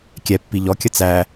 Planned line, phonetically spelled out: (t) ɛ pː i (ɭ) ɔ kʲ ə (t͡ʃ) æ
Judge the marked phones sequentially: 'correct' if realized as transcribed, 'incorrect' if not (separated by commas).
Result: incorrect, incorrect, incorrect